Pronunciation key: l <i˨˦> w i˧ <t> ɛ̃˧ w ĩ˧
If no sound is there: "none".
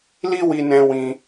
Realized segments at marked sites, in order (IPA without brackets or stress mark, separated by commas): i˦, n